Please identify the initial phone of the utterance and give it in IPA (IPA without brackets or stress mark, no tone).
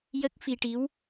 j